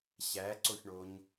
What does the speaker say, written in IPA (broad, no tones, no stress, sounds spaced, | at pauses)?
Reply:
ɕ æ ǀ o ç ɳ o ɲ